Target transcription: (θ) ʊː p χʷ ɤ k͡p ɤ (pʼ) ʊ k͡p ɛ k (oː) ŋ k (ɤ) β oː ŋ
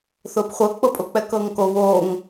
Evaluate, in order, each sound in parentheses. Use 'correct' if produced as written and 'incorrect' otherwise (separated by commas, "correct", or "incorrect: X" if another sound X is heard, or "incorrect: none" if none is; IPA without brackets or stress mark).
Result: correct, correct, incorrect: ɤː, incorrect: o